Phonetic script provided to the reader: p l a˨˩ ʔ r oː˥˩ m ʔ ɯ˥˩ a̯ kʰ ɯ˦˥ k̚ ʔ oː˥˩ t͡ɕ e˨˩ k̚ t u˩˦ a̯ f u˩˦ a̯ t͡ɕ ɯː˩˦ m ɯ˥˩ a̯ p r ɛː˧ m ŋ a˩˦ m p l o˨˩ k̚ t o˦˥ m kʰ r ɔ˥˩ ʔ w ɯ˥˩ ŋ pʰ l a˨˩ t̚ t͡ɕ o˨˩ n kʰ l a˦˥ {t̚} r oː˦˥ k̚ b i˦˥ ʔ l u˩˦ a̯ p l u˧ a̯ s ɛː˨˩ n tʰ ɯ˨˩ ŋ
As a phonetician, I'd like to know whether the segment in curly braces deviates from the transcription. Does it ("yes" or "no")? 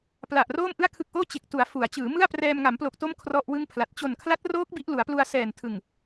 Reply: no